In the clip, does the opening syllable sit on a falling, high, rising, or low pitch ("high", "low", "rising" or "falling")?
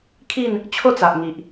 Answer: falling